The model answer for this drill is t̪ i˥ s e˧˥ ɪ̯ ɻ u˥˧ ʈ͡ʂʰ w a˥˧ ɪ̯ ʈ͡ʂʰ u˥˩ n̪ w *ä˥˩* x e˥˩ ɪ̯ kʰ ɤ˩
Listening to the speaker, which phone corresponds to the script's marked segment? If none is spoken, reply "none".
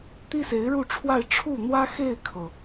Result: ä˥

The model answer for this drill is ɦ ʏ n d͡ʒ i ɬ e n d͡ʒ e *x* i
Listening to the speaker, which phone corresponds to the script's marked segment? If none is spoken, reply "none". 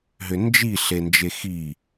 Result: x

